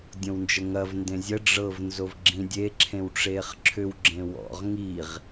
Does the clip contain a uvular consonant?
yes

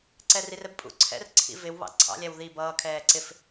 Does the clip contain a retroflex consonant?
no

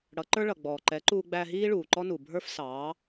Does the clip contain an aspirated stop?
no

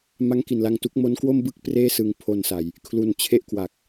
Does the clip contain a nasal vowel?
no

